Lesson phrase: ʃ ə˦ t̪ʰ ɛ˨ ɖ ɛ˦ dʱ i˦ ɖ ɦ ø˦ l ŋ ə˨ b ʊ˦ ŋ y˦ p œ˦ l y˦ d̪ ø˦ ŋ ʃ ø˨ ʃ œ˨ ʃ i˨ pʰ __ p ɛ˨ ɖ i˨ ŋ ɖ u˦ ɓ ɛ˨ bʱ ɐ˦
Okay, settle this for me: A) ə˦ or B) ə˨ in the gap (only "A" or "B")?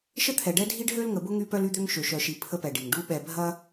A